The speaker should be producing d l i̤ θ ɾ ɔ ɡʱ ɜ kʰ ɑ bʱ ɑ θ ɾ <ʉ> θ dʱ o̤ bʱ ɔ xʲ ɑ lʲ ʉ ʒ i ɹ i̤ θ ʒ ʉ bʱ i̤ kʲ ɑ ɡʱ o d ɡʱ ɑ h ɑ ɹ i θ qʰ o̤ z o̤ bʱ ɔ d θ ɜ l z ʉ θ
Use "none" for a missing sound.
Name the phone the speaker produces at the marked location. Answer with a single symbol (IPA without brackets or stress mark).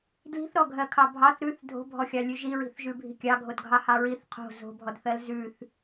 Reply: ʉ